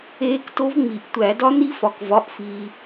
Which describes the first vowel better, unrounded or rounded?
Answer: unrounded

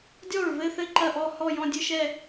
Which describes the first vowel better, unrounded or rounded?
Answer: rounded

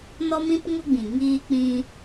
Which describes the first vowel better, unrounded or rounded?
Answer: rounded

